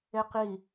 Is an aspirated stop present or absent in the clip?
absent